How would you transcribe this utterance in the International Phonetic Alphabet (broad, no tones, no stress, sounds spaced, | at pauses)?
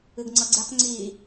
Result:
ɨ ɡ ŋ͡ǀ ʌ ɡ͡ǀ e q ŋ͡ǀ i